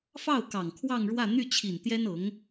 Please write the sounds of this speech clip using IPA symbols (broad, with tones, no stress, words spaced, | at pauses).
fɑ˥˩ʊ̯ kɑ˨˩ŋ kʰwɑ˥˧ŋɻwä˥˧ n̪y˥˩t͡ɕʰi˨˩nt̪jɛ˥n ɤ˧˥ŋ